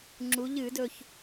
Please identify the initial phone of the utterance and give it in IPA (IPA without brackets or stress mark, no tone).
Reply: ŋ͡ǁ